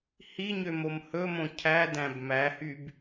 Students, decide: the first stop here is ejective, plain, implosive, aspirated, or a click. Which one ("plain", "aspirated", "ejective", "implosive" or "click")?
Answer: aspirated